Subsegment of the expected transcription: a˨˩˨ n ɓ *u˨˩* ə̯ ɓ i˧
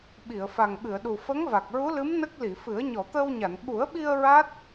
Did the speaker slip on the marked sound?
yes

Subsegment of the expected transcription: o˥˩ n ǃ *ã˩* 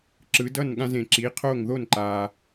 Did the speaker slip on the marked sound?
yes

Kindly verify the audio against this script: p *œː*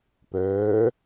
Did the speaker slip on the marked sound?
no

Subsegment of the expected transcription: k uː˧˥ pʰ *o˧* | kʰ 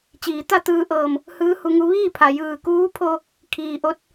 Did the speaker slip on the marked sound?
no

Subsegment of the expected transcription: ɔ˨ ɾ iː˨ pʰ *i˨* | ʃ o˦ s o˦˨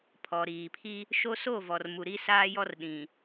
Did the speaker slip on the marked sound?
yes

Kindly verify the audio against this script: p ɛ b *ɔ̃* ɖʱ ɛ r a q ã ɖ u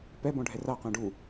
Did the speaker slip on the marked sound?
no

